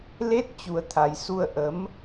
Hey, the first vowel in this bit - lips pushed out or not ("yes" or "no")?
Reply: no